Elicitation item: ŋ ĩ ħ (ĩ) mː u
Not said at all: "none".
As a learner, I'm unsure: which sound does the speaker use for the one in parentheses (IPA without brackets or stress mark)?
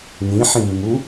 ĩ